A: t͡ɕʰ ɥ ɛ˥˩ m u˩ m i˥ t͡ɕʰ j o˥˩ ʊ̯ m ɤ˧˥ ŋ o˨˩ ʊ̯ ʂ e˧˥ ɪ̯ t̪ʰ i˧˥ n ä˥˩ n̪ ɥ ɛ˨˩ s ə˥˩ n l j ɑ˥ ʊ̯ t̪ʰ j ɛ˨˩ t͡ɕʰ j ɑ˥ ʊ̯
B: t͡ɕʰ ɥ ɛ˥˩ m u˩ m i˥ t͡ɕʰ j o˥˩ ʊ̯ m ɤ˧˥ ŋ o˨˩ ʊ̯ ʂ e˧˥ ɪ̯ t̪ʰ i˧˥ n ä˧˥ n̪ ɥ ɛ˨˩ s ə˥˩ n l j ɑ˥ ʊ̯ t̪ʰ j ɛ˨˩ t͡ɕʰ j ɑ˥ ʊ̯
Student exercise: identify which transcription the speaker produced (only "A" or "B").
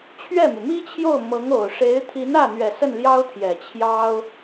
A